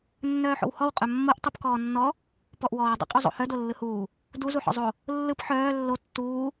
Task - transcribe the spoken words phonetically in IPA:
nː œː ħ o̰ w h ɔ w qʼ œ mː o ʔ tˤ ɯ p k ɔː nː ɔ | p ɔ ʔ w ɔː dˤ ṵ qʼ u zˤ o̰ h œ d o lː ɯ h uː | d u z u ħ ɔ̰ zˤ o | lː ɯ p ħ œː lː o tː uː

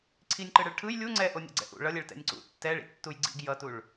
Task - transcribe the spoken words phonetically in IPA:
ǀʰ i nʲ ǃ ɯ ɽ ɯ ɭ ʈʰ ɯ j lʲ u ŋ͡ǀ ɛ ʔ o nʲ ɛ̰ ɡ͡ǀ ɛ̰ ʔ ṵ ɭ ʌ lʲ ɛ ɭ t ɛ̰ nʲ ǀ ṵ tː ɛ ɭ ḭ tː u j ɡ͡ǀ ḭ ɡ j ʌ t u ɭ

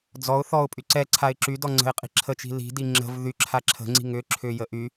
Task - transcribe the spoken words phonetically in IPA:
d͡z ɔ ʊ̯ θ ɔ ʊ̯ pʼ y ǀ ɛ ǀʰ a ɪ̯ ǁ y d ɔ ŋ͡ǀ ə̤ ɪ̯ qʼ i̤ ǁʰ ə t͡ʃ i̤ l i̤ d i ŋ͡ǁ ə̤ v ð y ǁʰ a ǁʰ ə̤ ŋ͡ǀ i̤ ŋ ʏ ǁʰ ʏ j ə ʔ y

